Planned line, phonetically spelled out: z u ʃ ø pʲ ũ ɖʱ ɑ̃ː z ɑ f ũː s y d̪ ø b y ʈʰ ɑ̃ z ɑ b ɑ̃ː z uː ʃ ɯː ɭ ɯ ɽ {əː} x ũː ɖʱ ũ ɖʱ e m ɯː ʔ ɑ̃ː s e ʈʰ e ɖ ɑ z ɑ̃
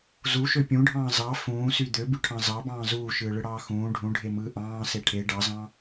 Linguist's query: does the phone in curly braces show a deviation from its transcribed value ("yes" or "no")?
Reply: yes